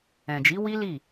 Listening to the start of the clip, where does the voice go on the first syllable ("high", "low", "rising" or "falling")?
low